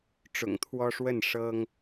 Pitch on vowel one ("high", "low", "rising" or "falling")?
low